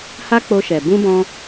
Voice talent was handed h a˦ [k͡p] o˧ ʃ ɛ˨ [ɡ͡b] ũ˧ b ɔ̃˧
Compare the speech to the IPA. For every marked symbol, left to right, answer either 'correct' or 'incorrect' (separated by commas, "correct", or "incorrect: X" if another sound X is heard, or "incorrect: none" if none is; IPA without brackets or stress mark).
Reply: correct, incorrect: b